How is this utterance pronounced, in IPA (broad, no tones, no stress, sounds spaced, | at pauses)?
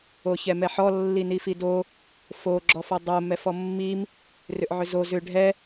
o ç ɛ m ɛ ħ ɔ lː i n i f i d o | f o ɡ͡ǁ ɔ f ɔ dˤ o m ɛ f ɔ mː i m | r ʏ ʔ ʕ ʏ z o z ʏ ɖʱ ɛ